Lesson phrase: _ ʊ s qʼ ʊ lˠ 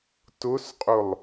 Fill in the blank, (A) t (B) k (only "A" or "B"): A